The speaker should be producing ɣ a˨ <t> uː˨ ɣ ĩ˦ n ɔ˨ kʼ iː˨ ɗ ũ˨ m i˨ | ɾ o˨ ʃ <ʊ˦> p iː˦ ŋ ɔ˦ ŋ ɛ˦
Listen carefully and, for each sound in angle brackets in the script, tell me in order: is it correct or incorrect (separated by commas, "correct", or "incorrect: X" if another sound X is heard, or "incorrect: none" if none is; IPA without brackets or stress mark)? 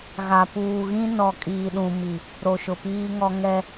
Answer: incorrect: p, incorrect: ʊ˨